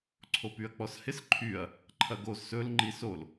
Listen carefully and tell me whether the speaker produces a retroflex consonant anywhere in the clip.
no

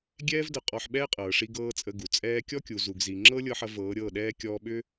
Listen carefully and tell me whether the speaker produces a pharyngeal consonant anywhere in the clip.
yes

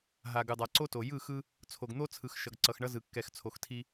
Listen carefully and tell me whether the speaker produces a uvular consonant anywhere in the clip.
no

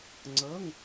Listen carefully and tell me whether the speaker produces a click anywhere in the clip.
yes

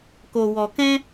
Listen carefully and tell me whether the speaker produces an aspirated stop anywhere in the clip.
no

